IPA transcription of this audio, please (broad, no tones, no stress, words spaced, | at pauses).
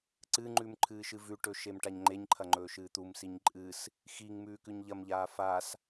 ǀɨŋ͡ǃʉm ǃʰɨːʃɨvʉʈɵ ʃemʈaɲŋ͡ǃeɲǃʰɐ ŋ͡ǃɵːʃɨːt̪umsiɲ ǃʼɨs | xiŋ mʉːkʉɲʎɐmʎaː fas